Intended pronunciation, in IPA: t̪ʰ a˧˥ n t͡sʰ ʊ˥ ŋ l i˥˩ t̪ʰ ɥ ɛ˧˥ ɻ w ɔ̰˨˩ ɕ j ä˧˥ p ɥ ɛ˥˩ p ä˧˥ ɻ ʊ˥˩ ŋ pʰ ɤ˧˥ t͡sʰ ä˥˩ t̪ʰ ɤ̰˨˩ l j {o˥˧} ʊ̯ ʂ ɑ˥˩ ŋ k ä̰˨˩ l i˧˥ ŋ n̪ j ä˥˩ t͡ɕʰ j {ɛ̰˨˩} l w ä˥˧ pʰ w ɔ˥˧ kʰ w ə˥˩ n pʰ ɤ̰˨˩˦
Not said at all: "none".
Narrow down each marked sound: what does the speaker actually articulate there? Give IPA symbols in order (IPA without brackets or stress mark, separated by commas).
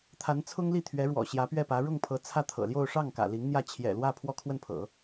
o˥˧, ɛ̰˨˩